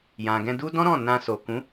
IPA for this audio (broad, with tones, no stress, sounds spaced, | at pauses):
j ã˨ ɡ ɛ̃˧ d u˦ d ɔ̃˦ ɾ ɔ̃˦˨ n ã˧ s o˨ k ũ˨˦